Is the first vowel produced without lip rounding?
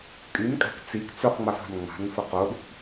no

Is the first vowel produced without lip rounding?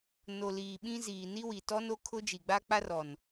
no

